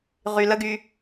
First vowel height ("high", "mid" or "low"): high